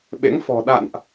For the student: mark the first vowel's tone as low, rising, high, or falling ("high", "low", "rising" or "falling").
rising